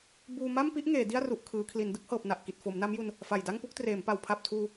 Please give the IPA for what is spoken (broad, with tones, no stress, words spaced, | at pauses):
buː˧ ma˥˩mpi˦˥ʔ ŋeː˩˦di˥˩a̯ru˨˩ʔ kʰɯː˩˦kʰli˩˦n dɯ˥˩k̚hɤː˨˩p̚na˨˩ʔ ki˨˩t̚fo˩˦mna˦˥mju˧n | fa˨˩jda˥˩ŋpu˦˥k̚ treː˩˦mpa˩˦w pʰa˨˩p̚tʰuː˧